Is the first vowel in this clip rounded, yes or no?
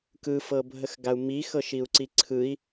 no